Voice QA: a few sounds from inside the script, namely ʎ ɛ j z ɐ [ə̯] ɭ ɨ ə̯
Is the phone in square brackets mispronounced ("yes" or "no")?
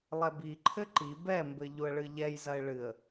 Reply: yes